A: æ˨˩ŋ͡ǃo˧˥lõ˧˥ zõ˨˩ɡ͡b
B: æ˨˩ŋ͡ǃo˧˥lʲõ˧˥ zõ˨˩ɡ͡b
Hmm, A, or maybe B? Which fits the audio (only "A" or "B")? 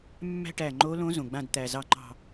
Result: A